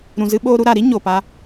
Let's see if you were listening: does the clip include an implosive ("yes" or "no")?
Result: yes